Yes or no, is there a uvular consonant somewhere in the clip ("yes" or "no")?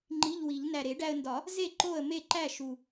no